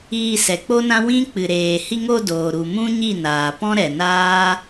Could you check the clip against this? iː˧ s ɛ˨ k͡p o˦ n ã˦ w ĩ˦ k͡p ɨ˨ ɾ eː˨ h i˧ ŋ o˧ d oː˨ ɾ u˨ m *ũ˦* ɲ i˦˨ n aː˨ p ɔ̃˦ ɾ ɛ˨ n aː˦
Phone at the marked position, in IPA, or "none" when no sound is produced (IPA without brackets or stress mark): ũ˦